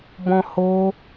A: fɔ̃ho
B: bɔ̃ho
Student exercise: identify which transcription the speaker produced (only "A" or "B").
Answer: B